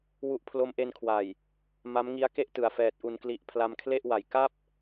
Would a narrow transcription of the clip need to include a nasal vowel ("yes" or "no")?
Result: no